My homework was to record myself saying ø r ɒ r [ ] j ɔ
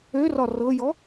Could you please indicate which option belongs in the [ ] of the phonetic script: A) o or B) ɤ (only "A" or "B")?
B